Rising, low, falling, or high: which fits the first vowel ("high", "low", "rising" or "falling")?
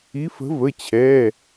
rising